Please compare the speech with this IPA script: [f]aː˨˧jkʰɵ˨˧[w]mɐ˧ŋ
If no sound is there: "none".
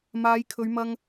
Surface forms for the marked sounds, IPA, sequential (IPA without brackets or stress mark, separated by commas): m, ɥ